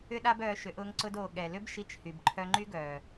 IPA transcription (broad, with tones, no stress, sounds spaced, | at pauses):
ʏ˦ ɗ a˦ b œː˧ ʃ ʏ˨˦ ʔ ʊː˧ ŋ ǀ ʊ˧ d oː˨ ɠ ɛ˨ l ʏ˦ b ʃ i˧ t͡ʃ h y˨ b ǃʰ œ˧ ŋ͡ǃ y˦ ɡ œː˨